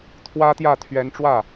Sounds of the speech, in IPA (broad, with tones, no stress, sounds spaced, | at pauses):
t̪ʰ w ä˥ t̪ j ä˥˩ t̪ʰ ɥ ɛ˧˥ n ʈ͡ʂ w ä˥˩